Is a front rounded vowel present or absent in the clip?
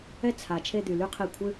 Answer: present